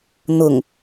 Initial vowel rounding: rounded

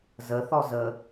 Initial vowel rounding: unrounded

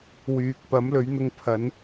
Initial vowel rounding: rounded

